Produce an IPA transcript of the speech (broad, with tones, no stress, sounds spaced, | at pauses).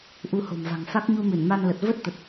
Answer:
ʔ u˧ h o̤˨˩ m v a̤˨˩ ŋ f a˦˥ k̚ ɲ u˧ m ɨ˧˩ n m a˧ n l ə˨˩ t̚ v ə˦˥ t̚ t̪ ə˨˩ t̚